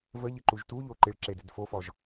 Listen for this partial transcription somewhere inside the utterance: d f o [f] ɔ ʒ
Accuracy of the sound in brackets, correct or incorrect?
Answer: correct